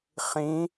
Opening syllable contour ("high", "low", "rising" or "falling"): rising